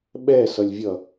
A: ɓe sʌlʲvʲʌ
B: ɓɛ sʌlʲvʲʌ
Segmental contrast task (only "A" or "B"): B